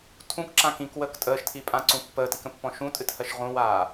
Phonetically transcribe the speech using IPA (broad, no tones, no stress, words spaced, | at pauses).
tʰũkǁã kĩkwəːk tʼəːʃtʰipʼãǀũ pːəːtikə̃pːɔ̃ ʃũtʼɨthɜʃ ʁũwaː